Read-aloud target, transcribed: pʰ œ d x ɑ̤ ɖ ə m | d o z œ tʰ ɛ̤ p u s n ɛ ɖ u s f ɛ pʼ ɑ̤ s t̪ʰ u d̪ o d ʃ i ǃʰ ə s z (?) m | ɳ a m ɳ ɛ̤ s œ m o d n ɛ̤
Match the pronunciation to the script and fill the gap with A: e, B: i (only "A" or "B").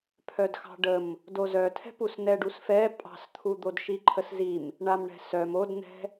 B